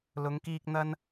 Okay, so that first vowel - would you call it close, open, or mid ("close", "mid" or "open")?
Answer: close